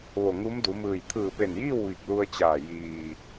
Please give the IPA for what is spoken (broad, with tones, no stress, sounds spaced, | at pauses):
ʋ o˧˩ ŋ u˧˥ m d u˩˧ m ɯː˧˩ j t̪ʰ ɯː˧˩ p e˧˩ n j iː˥˨ w ʋ i˧˩ k̚ l u˧ ə̯ t͡ɕ aː˧˩ j iː˩